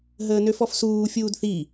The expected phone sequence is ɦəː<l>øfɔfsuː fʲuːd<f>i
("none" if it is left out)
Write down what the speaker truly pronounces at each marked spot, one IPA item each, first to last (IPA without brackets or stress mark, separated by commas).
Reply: n, θ